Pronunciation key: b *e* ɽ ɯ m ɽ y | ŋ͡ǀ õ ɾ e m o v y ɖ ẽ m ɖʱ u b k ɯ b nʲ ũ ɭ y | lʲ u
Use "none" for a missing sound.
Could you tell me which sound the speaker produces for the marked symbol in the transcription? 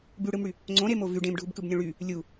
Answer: y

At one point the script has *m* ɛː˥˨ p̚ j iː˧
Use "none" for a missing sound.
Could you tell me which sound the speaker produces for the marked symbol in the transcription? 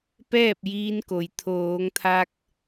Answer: p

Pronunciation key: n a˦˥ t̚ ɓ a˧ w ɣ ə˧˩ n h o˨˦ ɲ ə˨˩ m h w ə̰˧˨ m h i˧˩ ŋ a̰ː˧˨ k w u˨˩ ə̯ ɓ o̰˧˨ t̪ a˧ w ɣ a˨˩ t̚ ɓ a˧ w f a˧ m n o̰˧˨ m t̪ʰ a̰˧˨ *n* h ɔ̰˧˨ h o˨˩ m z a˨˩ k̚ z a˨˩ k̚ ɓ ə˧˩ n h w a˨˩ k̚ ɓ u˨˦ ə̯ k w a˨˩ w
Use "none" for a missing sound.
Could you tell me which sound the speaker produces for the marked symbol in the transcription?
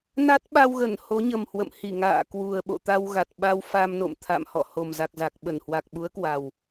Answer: m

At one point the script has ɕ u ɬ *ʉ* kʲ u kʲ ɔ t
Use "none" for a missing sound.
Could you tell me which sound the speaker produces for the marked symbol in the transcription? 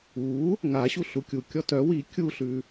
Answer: u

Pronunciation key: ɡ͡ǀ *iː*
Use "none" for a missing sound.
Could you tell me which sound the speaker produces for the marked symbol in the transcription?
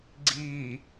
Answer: iː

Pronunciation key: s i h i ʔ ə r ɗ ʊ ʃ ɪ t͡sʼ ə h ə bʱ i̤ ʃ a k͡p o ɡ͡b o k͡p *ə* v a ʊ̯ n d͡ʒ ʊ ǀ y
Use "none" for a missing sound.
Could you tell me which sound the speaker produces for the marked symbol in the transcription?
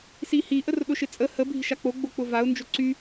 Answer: ʊ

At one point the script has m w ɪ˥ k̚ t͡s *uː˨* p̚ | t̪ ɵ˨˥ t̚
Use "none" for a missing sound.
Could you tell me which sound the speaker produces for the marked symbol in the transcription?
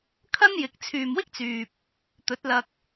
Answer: yː˨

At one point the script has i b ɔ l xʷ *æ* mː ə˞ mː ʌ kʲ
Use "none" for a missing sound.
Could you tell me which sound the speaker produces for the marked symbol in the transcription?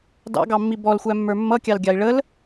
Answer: æ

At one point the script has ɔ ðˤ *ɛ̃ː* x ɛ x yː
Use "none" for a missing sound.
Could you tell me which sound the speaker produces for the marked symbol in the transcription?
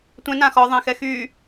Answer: ɛ̃ː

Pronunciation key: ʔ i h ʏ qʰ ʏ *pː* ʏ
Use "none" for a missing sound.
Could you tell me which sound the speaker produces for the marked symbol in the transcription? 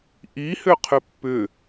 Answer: pː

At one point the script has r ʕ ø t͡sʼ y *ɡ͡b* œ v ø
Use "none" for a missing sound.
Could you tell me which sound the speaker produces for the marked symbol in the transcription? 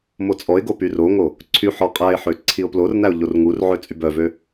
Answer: b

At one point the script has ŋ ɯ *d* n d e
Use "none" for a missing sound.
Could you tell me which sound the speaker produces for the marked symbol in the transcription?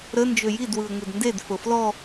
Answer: d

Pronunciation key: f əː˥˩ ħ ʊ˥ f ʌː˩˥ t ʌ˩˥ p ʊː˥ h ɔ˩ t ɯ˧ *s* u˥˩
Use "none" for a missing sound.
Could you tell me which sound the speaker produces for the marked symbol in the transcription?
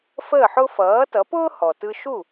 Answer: ʃ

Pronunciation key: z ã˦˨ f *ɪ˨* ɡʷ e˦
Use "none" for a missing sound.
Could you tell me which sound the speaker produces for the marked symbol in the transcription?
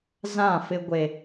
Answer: ɪ˦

